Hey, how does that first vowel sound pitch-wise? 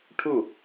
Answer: falling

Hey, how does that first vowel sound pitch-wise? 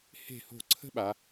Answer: falling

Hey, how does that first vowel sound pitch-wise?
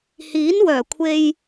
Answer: rising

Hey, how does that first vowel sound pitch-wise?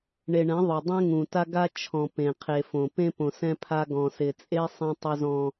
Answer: low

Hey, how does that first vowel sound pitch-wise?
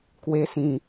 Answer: high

